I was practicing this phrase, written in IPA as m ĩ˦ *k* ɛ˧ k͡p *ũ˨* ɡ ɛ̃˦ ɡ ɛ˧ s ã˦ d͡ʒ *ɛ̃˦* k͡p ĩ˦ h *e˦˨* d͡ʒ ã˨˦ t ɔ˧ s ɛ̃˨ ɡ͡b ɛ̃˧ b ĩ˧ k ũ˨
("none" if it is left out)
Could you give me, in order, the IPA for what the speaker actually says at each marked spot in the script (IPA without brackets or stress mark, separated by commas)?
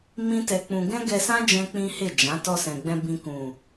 t, ũ˧, ɛ̃˦, e˦˨